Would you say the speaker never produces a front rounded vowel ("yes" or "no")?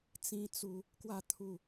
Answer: yes